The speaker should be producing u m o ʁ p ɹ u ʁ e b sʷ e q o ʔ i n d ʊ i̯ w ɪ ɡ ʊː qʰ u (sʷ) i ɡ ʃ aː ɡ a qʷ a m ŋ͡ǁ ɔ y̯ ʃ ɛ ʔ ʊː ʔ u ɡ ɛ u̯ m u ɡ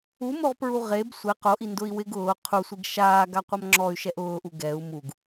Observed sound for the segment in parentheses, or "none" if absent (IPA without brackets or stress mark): sʷ